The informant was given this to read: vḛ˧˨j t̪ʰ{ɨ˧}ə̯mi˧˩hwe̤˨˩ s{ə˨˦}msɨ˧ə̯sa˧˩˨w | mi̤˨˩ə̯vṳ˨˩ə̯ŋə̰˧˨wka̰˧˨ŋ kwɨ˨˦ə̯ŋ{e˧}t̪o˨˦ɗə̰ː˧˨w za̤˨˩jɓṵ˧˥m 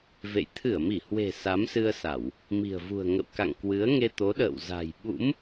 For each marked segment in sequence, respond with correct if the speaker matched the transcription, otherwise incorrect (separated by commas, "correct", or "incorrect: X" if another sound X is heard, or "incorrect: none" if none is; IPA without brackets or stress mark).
incorrect: ɨ˧˩, incorrect: a˨˦, correct